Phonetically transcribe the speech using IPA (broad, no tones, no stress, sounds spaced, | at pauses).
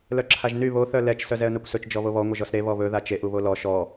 l œ ǁʰ a ʒ n y β o θ œ l ɛ t͡ʃ s œ z ɛ ə̯ n a kʷ s ɵ t͡ʃ d͡ʒ ɔ β o β ɔ ŋʷ ʌ ʒ ɔ s ɾ e β ɔ β ɵ ð a t͡ʃ e ʔ u β o l ɔ ʃ ɔ